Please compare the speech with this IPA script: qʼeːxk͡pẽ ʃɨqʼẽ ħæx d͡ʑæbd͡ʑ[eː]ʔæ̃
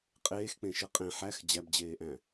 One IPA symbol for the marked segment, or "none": eː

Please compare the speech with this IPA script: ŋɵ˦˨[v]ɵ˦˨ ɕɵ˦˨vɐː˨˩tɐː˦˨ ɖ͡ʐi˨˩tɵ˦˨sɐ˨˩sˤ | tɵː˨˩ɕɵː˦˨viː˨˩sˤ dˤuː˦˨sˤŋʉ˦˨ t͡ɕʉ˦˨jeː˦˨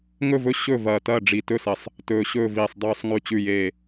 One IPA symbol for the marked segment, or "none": v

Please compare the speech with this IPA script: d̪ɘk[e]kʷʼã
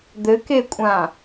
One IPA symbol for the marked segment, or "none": e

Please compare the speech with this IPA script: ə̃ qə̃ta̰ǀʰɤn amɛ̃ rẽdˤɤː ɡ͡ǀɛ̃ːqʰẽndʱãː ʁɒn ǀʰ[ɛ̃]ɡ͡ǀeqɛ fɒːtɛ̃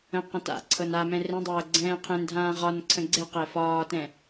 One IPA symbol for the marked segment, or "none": ə̃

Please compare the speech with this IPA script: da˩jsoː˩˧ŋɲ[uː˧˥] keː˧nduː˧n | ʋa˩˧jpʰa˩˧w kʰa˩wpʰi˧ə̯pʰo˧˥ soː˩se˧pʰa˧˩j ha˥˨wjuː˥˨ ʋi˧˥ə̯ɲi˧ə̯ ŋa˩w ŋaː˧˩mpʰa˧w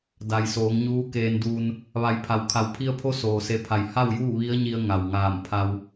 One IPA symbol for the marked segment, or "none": uː˧˥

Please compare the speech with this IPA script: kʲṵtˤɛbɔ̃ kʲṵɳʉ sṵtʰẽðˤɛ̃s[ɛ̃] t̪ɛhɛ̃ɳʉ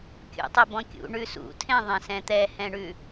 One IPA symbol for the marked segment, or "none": ɛ̃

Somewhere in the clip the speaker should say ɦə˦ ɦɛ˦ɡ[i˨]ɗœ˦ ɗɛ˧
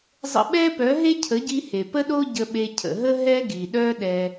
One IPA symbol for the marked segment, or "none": i˨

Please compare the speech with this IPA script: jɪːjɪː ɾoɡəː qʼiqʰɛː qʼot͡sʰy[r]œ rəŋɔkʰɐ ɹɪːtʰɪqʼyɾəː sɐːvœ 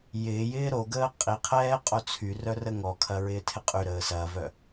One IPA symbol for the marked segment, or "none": r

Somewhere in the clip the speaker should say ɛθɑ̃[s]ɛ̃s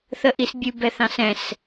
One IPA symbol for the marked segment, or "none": s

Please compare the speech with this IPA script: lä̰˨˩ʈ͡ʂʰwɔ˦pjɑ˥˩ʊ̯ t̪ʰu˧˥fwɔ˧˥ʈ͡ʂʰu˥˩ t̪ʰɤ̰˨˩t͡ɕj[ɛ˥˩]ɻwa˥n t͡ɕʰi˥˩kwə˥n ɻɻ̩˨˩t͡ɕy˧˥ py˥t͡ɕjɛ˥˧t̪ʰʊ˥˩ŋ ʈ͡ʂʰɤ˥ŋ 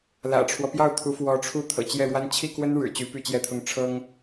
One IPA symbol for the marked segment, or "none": ɛ˥˩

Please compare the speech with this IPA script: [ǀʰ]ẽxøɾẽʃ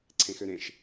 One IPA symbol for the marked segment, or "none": ǀʰ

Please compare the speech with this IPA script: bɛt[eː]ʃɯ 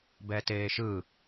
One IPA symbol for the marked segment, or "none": eː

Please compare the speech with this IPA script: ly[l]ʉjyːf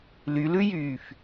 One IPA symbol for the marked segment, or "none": l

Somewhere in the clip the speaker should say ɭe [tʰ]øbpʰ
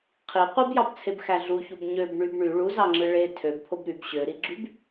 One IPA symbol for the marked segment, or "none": tʰ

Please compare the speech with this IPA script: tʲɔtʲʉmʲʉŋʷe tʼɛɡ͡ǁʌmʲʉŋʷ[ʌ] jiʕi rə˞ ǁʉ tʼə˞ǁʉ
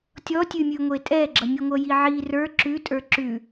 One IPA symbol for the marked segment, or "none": ʌ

